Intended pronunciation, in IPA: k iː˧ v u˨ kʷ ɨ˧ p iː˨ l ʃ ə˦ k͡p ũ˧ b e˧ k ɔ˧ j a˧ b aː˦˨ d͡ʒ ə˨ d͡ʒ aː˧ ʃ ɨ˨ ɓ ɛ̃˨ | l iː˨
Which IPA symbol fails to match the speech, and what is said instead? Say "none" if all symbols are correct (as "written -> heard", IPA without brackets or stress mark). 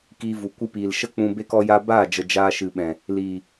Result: none